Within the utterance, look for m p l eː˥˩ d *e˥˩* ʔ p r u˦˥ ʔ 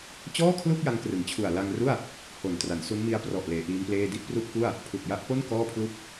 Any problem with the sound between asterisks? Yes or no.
yes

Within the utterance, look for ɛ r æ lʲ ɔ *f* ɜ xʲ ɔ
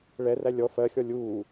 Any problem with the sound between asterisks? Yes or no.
no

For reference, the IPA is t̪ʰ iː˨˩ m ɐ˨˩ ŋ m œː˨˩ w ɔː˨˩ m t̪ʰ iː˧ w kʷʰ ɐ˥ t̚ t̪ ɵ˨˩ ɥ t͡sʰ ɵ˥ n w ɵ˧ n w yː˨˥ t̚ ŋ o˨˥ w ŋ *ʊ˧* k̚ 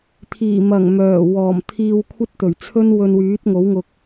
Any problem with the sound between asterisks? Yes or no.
no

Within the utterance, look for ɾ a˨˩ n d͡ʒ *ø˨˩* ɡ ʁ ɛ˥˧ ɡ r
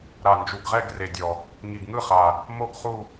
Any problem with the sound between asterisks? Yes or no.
yes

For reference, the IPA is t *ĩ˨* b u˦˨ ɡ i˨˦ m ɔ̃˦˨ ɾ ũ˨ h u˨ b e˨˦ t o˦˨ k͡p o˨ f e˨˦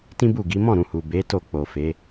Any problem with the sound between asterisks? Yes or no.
yes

